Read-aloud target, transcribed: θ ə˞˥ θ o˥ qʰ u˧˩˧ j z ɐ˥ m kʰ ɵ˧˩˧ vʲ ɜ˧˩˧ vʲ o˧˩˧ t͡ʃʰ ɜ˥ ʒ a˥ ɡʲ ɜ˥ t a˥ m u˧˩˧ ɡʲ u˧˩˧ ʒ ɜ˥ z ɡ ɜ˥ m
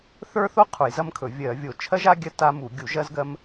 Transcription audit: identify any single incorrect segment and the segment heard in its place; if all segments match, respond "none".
none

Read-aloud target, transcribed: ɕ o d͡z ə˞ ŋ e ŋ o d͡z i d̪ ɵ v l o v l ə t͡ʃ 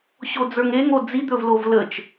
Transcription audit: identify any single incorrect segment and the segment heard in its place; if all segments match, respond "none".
none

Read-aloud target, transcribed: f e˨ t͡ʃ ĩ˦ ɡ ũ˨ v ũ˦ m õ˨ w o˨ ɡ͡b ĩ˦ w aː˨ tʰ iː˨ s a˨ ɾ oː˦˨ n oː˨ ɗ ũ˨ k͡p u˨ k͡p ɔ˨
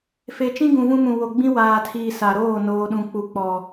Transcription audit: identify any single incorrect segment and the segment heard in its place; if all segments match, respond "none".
õ˨ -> ũ˨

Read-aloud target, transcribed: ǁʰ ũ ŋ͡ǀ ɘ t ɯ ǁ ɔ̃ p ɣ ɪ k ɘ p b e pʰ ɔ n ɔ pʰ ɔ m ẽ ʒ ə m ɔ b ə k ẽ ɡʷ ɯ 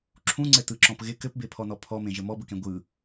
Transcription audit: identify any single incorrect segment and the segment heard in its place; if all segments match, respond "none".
none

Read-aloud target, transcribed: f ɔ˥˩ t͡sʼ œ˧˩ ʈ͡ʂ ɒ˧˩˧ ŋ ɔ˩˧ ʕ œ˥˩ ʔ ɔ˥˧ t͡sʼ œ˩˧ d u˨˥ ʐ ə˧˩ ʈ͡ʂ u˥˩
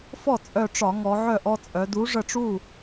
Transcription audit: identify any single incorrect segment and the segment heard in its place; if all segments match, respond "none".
none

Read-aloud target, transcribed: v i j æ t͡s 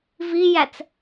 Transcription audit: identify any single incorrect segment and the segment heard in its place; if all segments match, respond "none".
none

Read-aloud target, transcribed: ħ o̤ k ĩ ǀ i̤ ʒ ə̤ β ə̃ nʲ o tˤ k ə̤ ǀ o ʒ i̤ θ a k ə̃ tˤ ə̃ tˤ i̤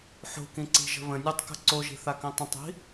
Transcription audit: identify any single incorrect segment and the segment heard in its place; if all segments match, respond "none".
none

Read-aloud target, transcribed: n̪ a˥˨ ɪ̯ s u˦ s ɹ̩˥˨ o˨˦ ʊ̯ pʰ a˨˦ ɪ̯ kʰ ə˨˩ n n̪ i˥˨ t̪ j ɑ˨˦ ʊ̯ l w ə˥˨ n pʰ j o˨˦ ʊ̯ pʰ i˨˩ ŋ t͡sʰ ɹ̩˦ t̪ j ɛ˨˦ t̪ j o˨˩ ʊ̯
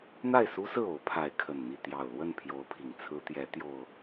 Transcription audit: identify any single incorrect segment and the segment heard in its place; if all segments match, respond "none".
ɑ˨˦ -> ɑ˨˩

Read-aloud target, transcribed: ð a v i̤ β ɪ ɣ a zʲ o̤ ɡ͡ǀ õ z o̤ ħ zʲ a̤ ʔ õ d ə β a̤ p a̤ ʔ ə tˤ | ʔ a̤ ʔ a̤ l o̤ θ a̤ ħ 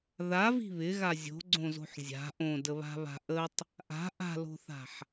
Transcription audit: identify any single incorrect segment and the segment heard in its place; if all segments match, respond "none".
p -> β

